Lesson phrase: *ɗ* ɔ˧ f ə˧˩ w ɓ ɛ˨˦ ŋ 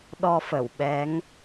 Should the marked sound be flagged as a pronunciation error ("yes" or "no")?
no